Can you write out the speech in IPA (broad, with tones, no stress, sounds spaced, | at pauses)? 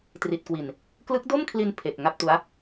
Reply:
t r i˨˩ t̚ k w i˨˩ n | k l ɯ˦˥ k̚ d o˥˩ m kʰ l i˧ n pʰ e˨˩ k̚ ŋ a˥˩ p̚ t u˦˥ a̯